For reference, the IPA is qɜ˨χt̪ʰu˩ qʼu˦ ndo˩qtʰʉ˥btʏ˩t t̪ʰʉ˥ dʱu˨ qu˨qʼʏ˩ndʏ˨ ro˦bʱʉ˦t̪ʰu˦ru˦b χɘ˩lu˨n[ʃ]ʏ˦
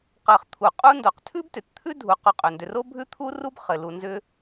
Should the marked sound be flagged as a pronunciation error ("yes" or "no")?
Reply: yes